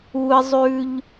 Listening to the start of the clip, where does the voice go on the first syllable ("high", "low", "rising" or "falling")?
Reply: high